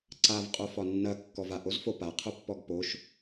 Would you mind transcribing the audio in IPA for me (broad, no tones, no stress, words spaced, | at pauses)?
ǀav qʼofɒnːɐ kːɔvaʔozfo paqʰopːɔɡ poʃ